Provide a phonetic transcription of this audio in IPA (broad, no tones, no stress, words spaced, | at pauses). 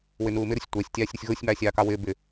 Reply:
wɪnuːmɪɾʊsʲ tʷɜsʲ tʲɑːsʲɾɪsʲɣʊːsʲmɑːsʲ ɑːkɑwɪː bɪ